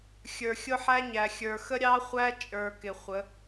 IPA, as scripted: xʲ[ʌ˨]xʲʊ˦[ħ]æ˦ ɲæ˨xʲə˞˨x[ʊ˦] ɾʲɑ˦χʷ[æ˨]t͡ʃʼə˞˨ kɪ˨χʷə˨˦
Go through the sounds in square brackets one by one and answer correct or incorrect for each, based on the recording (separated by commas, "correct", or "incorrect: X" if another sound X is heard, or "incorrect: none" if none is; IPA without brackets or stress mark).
incorrect: ə˞˨, correct, incorrect: ə˦, incorrect: æ˦